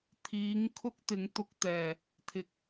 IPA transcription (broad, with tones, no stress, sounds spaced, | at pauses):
t̪ʰ iː˨˥ ŋ kʰ ʊ˥ k̚ t̪ ɪ˨˥ ŋ t̪ ʊ˧ k̚ t̪ ɛː˨˩ | t̪ʰ ɪ˨ k̚